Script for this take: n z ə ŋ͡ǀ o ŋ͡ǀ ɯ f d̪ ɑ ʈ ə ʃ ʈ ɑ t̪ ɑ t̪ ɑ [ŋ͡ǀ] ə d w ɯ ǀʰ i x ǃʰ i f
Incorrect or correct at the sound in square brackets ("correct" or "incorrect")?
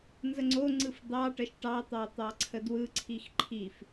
incorrect